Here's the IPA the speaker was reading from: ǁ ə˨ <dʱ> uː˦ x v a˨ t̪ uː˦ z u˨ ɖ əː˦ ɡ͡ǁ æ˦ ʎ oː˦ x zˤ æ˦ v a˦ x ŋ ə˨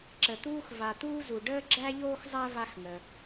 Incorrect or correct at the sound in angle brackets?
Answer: incorrect: t̪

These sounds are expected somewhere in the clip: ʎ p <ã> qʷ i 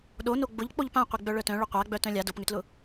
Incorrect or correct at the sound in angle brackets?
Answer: correct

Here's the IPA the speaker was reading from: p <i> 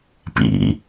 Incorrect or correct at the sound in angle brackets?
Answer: incorrect: ḭ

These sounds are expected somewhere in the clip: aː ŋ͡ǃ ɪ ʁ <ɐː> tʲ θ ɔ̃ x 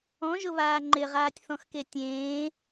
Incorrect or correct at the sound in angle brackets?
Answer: incorrect: aː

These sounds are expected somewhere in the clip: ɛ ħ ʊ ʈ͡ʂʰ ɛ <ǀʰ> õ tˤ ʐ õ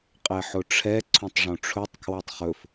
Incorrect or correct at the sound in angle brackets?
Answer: correct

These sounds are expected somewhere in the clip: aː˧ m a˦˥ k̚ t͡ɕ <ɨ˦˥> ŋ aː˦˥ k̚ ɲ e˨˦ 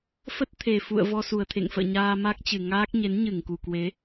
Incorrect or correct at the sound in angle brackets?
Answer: incorrect: ɨ˨˩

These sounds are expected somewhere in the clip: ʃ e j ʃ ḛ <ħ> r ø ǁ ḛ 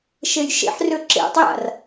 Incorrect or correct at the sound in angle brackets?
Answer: correct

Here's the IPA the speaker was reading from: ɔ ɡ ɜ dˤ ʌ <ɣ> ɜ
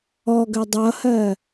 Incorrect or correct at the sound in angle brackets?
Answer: incorrect: h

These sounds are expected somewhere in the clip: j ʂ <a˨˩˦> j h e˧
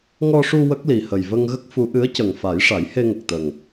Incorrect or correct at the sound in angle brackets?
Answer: correct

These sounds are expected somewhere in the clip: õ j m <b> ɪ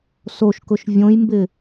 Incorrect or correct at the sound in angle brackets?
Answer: correct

